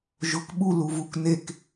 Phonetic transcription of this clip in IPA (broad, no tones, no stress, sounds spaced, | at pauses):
ʒ ʊ k ɓ u l u v u k n e k